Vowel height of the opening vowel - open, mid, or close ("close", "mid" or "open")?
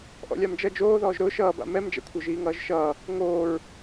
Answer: mid